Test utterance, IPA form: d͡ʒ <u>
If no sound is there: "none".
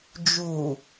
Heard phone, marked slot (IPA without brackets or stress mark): u